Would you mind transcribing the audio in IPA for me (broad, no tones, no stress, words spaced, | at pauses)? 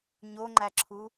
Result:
ɲoŋ͡ǃæǁʰu